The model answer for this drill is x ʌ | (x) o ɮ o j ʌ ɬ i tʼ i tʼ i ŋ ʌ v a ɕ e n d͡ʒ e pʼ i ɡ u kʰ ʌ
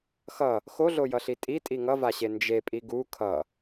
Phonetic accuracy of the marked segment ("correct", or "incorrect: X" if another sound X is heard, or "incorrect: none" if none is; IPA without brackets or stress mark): correct